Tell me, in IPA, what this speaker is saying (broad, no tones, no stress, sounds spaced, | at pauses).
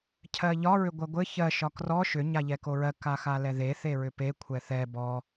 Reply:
cʰ ɜ ʎ ɒ ɹ ʏ ɡʷ ɜ ɡʷ ɘ ç ɜ ʃ ɒ k r ɔ ʃ ʏ ɲ a ʎ ɛ k o ɹ ɜ k a x a l ɛ ð e θ e ɹ ʏ p e kʷʰ ɛ θ ɛ b ɔ